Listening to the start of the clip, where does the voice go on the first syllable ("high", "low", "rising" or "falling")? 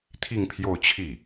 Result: falling